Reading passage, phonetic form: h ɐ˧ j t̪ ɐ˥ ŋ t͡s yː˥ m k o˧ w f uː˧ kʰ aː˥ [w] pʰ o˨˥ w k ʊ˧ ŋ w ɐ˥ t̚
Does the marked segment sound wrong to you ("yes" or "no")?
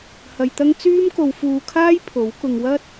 yes